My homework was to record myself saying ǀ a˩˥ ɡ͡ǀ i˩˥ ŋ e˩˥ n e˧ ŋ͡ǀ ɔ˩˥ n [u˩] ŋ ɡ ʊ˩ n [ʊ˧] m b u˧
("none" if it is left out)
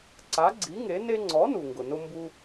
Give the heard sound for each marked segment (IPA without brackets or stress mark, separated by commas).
u˩, ʊ˧